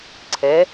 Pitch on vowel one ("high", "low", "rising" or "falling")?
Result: rising